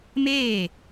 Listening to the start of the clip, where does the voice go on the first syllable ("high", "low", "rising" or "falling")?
falling